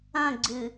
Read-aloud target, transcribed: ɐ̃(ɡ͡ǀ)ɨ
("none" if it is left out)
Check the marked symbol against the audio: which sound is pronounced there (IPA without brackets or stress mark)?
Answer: ɡ͡ǀ